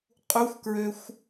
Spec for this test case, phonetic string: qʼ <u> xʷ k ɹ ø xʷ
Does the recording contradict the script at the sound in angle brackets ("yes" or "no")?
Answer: no